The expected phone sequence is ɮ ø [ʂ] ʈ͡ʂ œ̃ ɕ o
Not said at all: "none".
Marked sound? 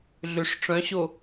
ʂ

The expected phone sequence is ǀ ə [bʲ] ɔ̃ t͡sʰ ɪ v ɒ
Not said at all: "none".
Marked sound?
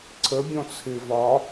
bʲ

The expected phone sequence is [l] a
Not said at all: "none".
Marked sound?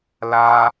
l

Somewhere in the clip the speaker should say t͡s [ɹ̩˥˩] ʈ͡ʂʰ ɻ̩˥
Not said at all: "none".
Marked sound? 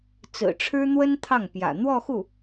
ɹ̩˨˩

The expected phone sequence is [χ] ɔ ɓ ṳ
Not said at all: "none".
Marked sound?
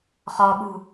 χ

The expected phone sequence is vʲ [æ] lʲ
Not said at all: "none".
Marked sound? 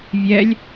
ɛ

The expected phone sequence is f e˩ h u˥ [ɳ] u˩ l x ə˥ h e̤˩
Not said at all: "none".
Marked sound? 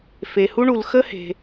ɳ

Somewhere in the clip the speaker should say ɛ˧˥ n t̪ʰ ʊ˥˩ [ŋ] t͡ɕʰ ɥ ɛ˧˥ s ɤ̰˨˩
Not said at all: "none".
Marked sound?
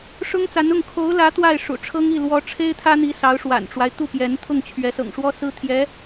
ŋ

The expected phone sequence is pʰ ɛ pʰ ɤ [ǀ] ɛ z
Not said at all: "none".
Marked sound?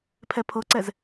ǀ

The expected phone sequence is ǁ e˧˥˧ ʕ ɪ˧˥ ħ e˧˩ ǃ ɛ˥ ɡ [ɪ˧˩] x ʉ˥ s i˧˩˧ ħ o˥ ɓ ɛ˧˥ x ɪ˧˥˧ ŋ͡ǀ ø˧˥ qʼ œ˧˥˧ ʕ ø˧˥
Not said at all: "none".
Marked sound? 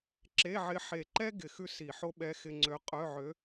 ɪ˧˩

